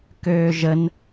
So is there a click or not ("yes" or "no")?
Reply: no